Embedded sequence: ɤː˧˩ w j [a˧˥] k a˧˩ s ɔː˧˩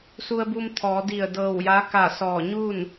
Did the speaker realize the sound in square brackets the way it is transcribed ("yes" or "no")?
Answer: yes